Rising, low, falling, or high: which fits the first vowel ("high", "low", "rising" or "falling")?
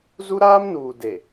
high